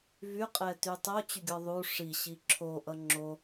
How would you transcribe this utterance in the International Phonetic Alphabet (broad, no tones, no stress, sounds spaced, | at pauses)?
v y qʼ ɛ t y tˤ o t͡ɕ y ɡʲ ɔ ðˤ u ʂ i ɕ i ǁʰ o ʔ ʌ ŋ͡ǁ o